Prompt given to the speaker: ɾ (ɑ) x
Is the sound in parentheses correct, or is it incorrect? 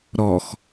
incorrect